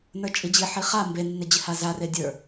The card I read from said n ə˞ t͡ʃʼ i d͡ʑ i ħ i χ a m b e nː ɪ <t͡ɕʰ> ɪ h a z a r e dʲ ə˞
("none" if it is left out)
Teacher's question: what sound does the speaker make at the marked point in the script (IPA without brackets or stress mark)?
d͡ʑ